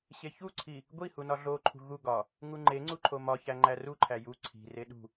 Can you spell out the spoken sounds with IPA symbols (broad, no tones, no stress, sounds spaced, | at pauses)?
ɕ e ç u ǀʰ i | ɡʷ i h u n ɒ ɮ o ǃʰ ṳ ɣ u ɡ ɒ | ŋ u ŋ͡ǃ e ŋ͡ǀ u ǃʰ o m ɒ ç æ ŋ͡ǃ æ r u ǃʰ æ j u ǀʰ i̤ r e ɗ ṳ